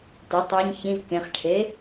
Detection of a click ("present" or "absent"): absent